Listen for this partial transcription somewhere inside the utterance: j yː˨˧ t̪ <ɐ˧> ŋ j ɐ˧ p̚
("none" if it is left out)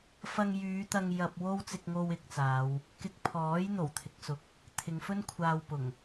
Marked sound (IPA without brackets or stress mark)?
ɐ˧